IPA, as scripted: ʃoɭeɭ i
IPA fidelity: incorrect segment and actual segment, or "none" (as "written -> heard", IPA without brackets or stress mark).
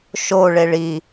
none